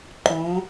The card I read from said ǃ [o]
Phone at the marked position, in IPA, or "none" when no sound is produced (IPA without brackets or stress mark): õ